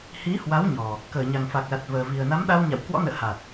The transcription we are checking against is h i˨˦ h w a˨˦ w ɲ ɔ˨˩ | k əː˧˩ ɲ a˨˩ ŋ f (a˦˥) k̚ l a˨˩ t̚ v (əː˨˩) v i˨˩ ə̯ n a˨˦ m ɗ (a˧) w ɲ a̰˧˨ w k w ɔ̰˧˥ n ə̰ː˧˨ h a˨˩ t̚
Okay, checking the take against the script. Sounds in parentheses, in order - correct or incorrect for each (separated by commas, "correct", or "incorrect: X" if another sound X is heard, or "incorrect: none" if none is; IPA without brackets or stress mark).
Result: incorrect: a˨˩, correct, correct